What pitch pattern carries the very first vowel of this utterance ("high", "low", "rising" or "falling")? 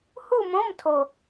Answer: falling